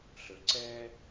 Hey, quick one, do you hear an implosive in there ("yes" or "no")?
no